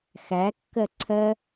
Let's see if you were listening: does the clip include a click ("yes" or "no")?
yes